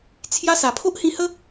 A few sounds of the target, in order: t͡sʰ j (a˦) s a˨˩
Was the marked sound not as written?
no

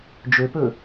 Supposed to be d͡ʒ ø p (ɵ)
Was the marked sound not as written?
no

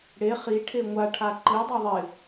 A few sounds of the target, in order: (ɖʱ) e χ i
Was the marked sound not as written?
yes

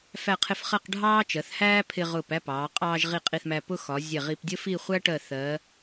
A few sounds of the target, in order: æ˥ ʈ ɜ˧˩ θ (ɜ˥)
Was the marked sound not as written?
yes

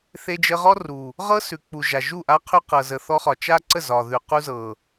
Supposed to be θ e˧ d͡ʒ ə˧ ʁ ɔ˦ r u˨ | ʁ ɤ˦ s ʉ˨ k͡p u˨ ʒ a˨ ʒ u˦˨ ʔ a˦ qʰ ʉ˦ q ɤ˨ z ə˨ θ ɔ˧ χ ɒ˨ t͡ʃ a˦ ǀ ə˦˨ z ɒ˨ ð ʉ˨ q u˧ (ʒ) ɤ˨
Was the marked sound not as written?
yes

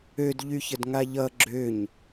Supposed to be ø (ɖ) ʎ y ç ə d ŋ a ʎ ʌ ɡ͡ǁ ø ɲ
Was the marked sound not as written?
yes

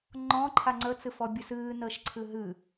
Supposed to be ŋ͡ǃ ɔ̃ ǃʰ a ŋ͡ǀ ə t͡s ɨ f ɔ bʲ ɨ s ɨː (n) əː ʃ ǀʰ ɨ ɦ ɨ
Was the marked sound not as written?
no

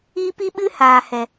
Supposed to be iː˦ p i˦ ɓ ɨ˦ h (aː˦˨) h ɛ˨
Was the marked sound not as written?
yes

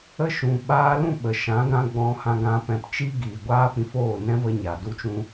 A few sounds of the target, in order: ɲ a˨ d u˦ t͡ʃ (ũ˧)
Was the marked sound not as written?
yes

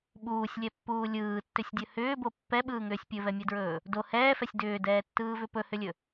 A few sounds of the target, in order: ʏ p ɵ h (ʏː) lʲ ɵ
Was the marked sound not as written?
yes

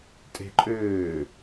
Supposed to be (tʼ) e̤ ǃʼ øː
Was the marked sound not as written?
no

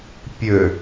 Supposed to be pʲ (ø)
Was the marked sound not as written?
no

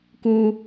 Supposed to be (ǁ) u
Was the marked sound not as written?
yes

